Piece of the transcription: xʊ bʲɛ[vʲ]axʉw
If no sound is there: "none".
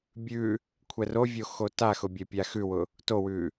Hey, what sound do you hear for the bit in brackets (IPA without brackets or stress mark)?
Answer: pʲ